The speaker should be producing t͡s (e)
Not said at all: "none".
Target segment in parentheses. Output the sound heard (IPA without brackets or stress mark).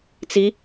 i